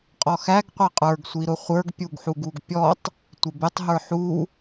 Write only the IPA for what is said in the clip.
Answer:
qʼ ɔ x æ ɡ qʷ ɛ qʼ ə˞ ɡ sʷ i ɾ ʊ χʷ ə˞ ɡ pʲ u ɡ ħ u ɡ u ɡ pʲ ɔ tˤ | tʷ ɪ b ɪ tˤ ɦ ə˞ ħ u

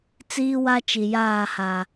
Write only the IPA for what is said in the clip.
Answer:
t͡s iː˦ w a˦ t͡ʃ i˨ j aː˦˨ h a˨

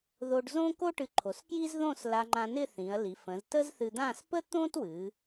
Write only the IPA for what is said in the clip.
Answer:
ð o˧ ɖ z õ˥ k o˥ ʈ ɨ˧ ǃʰ o˩˧ s k j i˥ z ð õ˥˧ s l a˧ ŋ͡ǃ ã˧ n ɪ˥˧ θ ĩ˩˧ ɐ̯ l i˩˧ f ə̃˩˧ z t ə˥ z θ ɨ˧ d̪ ã˥˧ s p ə˥ t̪ õ˥ t w ɨ˩˧

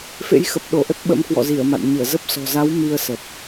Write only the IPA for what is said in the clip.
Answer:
f ḛ˧˥ j x ə˨˩ p̚ ɗ o˧˩ ʔ ə˦˥ t̚ ɓ ə̰˧˥ m k w ɔ̰˧˨ z i˧˩ ə̯ m a̰˧˨ n ɲ ɨ˧˩ ə̯ z ə˦˥ p̚ s ɔ̤˨˩ z a˨˦ w m i˧ ə̯ s ə˨˩ t̚

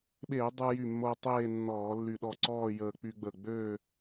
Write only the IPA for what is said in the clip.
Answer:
ɓ eː˧˩˧ dˤ u˧ j y˧˩ mː o˧ tˤ eː˥˧ nː ɔː˧˩˧ lː y˧˩ ɗ ɔ˥˩ ǀ ɔː˥˧ j əː˧ k͡p y˧ ɡ͡b ə˧˩ ɡ͡b ø˥˧

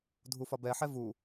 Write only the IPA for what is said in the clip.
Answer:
dʱ u f ɒ b ɛ ħ ɛ v u

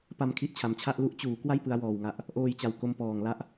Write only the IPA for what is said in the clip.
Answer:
p a˧ m kʰ i˦˥ ʔ t͡ɕʰ a˨˩ m t͡ɕʰ a˥˩ ʔ l u˦˥ ʔ t͡ɕ uː˩˦ k w a˥˩ j p ɯ˦˥ a̯ w ɔː˨˩ w ŋ a˨˩ ʔ | ʔ oː˧ j t͡ɕ a˨˩ w k o˧ m p ɔː˨˩ ŋ l a˦˥ ʔ

